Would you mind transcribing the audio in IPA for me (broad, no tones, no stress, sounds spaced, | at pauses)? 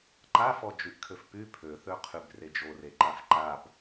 ǃ a f ɔ d͡ʒ y ʔ kʰ ø f p y pʰ ø θ ø qʰ y b r e d͡ʒ o r e ǃ a f ǃ a b